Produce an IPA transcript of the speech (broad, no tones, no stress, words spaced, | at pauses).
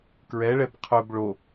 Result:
kɹɛɭɛb qʰɵb ɭo